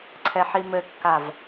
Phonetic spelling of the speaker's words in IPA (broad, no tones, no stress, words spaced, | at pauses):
ǀʰɛħimɘkːav